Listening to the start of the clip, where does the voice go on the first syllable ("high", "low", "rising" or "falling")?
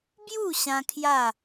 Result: falling